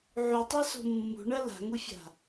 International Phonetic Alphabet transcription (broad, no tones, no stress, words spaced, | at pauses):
ʕutˤaso̤ mːṳɳɐ la̤ŋufʲa̤